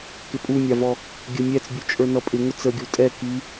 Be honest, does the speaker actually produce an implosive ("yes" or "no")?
no